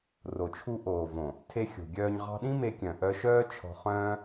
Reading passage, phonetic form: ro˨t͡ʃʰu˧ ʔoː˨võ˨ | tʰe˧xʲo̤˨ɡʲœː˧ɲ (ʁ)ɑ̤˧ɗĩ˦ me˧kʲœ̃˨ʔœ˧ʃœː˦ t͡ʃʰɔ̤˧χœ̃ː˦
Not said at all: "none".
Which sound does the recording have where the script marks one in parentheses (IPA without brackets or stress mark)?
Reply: ʁ